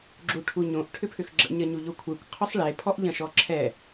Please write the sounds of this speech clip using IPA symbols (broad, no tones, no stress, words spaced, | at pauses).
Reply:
ɡ͡ǁuʈʰuɲõʔ ʈʰʏpʰʏxɡ͡ǁə̰ ɲɐɲuʎokʷʰekʷ qʰʏsˤɭe pʰɔʔʎɐ̃ʃɔǁʰɛ